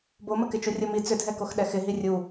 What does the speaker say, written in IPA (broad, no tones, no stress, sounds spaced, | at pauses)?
b o m ə k ɪ t͡ʃ u rʲ o m i t͡s ʏ dʱ ɛ k o x ɗ ɛ x ɪ ɦ i rʲ u